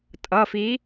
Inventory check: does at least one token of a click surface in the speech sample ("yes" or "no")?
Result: no